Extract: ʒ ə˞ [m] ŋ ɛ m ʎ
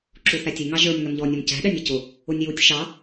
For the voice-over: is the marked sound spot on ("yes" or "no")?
yes